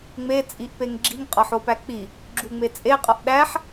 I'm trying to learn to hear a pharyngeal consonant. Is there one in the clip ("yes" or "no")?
yes